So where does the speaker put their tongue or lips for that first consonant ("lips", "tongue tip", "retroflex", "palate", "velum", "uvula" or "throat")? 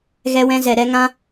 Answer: velum